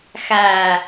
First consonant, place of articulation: velar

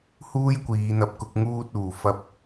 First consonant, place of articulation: glottal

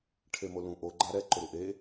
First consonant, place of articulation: retroflex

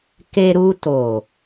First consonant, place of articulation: velar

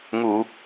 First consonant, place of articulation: velar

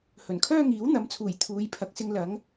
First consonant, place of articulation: glottal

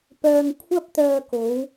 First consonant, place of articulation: labial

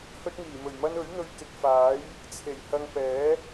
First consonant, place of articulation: glottal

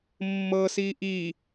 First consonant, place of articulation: labial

